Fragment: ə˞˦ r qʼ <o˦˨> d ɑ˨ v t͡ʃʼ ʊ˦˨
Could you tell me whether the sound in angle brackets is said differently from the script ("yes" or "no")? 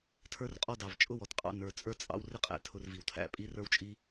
yes